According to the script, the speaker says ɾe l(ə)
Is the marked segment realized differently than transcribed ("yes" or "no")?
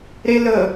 no